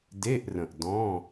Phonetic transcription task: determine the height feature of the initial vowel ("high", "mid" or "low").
mid